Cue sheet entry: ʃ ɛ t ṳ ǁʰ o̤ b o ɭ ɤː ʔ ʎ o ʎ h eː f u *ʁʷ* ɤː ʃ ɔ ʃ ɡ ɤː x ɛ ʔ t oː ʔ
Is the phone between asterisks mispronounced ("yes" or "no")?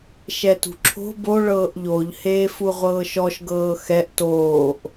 no